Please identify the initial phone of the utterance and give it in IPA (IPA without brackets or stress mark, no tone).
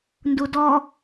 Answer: n